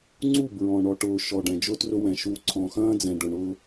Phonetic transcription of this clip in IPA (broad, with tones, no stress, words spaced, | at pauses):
ŋ͡ǀu˦˨ bɹɔ̃˨ ɳɔ˨ʈʊː˨ ʃɔ˨ ɖɛ̃˨d͡ʒʊ˦trʊ˦wɛ̃˨ ʃuː˨ǀʰɔ̃ː˨xɐ̃ː˦ d͡zɛ̃˨ɖʊ˨ɳʊː˦